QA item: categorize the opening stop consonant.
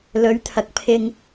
aspirated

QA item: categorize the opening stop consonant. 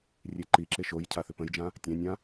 click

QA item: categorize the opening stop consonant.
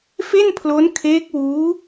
aspirated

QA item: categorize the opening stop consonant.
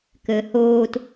plain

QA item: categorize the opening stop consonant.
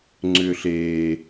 click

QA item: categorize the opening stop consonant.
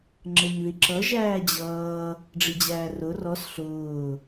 click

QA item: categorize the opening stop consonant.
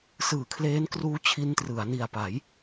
aspirated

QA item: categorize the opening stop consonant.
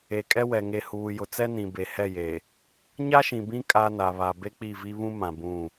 ejective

